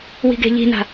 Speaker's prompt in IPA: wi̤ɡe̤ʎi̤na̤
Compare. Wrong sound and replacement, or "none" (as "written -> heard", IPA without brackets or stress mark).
none